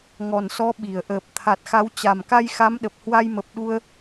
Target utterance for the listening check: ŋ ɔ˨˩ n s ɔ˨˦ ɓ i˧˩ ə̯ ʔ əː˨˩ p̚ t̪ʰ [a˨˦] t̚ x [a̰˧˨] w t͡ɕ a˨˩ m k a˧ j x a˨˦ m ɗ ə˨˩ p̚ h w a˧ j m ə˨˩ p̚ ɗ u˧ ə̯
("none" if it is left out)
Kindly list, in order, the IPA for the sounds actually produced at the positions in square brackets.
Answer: a˨˩, a˨˦

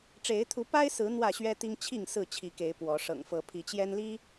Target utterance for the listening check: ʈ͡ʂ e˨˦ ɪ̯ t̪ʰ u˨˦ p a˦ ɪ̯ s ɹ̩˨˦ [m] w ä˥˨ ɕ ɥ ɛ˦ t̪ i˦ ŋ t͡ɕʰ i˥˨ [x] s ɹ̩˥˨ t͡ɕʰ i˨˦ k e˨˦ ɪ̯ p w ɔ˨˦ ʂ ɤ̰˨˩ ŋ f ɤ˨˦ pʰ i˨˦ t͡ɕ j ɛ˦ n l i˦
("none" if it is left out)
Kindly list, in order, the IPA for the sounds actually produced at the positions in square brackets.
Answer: n̪, ŋ

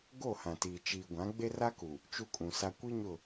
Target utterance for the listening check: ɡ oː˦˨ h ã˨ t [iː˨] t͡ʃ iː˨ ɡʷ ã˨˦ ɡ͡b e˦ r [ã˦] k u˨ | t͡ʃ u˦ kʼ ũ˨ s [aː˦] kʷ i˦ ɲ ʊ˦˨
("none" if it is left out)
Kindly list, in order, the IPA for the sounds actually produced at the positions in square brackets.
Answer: iː˨, a˦, a˦

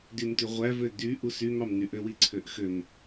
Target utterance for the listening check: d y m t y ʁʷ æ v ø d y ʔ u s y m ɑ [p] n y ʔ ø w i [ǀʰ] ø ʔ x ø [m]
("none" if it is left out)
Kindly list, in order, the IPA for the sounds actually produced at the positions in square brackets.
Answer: m, ǀʰ, m

